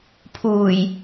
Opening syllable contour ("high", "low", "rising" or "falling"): low